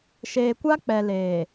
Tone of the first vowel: low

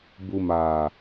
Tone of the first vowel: low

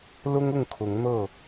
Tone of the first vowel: high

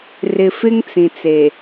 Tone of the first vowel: low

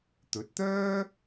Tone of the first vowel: rising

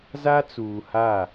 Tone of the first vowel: high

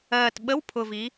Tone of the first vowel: low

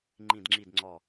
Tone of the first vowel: low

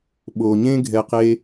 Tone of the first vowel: low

